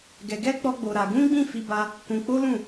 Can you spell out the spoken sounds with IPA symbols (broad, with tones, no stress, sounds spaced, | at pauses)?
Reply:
ɡ ɛ˧ ɡ ɛ˦ k͡p ɔ˦ ɡ͡b o˧ ɾ a˧ ɡ ũ˦ ɡ͡b ĩ˦˨ f i˧ b a˧ | k ũ˧ k͡p o˦ l ũ˦˨